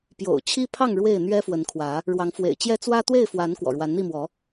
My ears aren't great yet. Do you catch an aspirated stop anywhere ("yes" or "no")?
yes